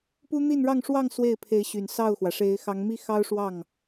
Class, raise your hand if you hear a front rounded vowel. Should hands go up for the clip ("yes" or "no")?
yes